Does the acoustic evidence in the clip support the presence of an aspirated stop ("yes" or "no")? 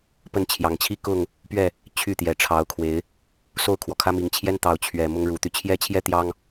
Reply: yes